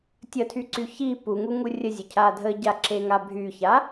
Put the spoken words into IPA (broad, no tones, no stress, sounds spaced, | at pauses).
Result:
tʲ ə tʰ y ǀ y ç i p u ŋ u ŋ u rʲ ə zʲ ʊ cʰ a dʱ ə ɟ a ǁ e ŋ a bʱ y ç a